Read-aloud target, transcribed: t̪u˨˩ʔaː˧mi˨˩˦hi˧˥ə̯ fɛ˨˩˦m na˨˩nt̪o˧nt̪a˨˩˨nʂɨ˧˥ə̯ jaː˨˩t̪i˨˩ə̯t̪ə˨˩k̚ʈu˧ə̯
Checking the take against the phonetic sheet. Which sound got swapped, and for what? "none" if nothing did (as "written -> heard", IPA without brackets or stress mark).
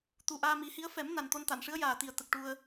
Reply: none